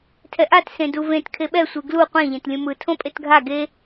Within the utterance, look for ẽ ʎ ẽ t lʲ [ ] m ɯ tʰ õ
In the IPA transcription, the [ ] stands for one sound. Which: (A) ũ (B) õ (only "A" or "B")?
A